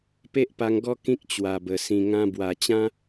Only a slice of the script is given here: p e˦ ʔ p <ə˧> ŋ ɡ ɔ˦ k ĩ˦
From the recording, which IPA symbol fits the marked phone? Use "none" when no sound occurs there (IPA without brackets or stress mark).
a˧